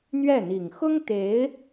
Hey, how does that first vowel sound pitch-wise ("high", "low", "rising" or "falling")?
falling